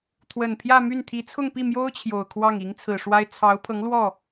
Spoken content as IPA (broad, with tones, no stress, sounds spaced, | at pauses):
t̪ʰ w ə˨˩ n pʰ j ä˥˧ m y˥˩ n t̪ʰ i˧˥ t͡sʰ ʊ˥˧ ŋ p i˥˩ m j o˥ ʊ̯ t͡ɕʰ j o˨˩ ʊ̯ kʰ w ɑ˥˩ ŋ i˧˥ ŋ t͡sʰ ɹ̩˨˩ ʂ w a˥ ɪ̯ t͡sʰ ɑ˧˥ ʊ̯ pʰ ɤ˧˥ ŋ l w ɔ˥˩